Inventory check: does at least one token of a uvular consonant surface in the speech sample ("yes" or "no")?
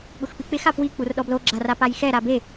no